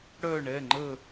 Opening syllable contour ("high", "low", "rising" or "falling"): falling